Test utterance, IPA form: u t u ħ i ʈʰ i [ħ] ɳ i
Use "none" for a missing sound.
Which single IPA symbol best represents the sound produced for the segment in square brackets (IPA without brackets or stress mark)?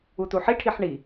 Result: ħ